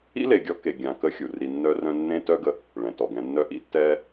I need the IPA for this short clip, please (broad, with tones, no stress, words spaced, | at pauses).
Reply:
ḭ˦le˨ɡʲɔ˧ ke˨ ɡʲã˨kə˧ xʲu˨ ri˨ nːœ˦rœ̃˦ nːẽ˦tœ˦ɡə˧ | ɭɛ̃˨tɔ˨ɡɛ̃˧ nːœ˦ ʔḭ˦tːɛː˦